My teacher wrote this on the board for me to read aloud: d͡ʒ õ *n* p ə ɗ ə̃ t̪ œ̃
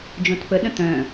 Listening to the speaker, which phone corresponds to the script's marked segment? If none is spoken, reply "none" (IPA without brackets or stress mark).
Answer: t